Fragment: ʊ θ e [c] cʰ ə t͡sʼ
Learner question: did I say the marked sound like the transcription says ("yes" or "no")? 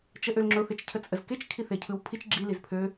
no